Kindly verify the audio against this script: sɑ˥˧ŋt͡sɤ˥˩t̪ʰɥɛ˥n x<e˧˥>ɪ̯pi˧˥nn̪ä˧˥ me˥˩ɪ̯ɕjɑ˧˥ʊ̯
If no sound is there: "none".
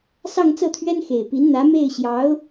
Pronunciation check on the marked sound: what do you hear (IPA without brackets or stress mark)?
e˨˩